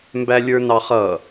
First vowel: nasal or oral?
oral